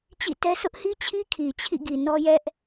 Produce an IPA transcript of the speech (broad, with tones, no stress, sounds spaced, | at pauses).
t͡ɕ ḭ˦˨ t ɛ˦ s ʊ˦ ʔ h i˦ t͡ɕʰ i˦ kʰ i˨ t͡ɕʰ ḭ˦˨ ɡ i˨ n ɔ˦ j ɛ˦ ʔ